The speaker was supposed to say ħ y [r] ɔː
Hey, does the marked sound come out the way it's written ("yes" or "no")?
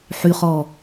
no